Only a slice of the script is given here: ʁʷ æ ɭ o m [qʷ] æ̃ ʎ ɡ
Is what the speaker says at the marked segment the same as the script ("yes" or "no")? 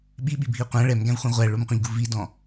yes